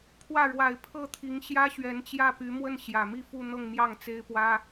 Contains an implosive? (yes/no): no